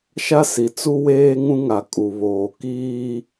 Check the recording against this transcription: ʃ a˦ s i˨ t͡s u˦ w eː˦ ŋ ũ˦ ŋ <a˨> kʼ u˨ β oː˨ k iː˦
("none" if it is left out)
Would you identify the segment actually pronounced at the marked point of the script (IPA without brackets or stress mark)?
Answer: a˨